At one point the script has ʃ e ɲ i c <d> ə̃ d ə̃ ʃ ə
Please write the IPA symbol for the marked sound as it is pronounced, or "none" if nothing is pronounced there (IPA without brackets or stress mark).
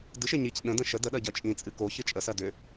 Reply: ɗ